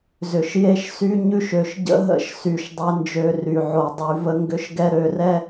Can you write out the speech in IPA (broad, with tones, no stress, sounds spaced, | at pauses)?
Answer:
z ʏ˨ ʃ j e˦ ʃ s y˦ ɲ ʉ˦ ʃ ø˨ ʃ ɟ ə̰˦ ɦ ə̰˦ ʃ s y˨ ʃ dˤ e˦ n d͡ʒ ø˦˨ r y˨ ʕ o˨ dˤ y˨˦ v ə˦ ŋ ɡ ʏ˦ ʃ ɡ ɛ˦ ɾ ø˦˨ r ɛ˦